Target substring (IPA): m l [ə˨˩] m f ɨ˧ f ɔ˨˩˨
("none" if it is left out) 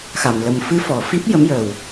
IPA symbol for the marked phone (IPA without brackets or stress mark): ə˨˩